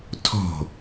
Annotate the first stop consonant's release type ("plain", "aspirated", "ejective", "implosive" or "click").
aspirated